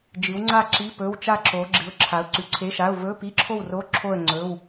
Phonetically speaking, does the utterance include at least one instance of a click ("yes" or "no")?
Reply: yes